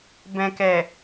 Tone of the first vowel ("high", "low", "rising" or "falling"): low